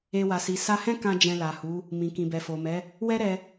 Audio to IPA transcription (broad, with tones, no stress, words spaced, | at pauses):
e˧wa˨si˨ sa˧hɛ̃˦kã˧ d͡ʒɛ̃˧la˨hu˨˦ | mĩ˨kĩ˨bɛ˨ fo˨mɛ˨˦ | wɛ˦ɾɛ˧